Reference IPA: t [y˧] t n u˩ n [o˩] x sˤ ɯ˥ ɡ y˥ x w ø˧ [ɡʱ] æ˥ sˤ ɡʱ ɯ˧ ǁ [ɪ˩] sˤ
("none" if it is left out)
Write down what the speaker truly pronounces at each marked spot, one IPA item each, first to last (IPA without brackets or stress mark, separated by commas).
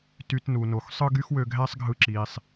y˧, o˩, ɡʱ, i˩